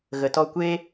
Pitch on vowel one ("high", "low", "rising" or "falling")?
low